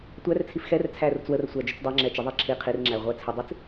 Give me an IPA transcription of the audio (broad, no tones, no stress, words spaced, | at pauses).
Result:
tʷært͡sʰif xɛr t͡sʰærʊt͡swərsʷæ d͡ʒʊt͡sdˤɛŋ͡ǁɛ t͡ʃəðˤi ǁʰi qʰirŋ͡ǁæ ʁʷæt͡sʰʊdˤit͡s